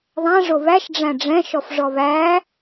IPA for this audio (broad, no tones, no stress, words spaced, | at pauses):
ðˤæ̃ ʐoβæʃ ɖ͡ʐæ̃ɖ͡ʐɛ̃ ʃɔfʐɔβæ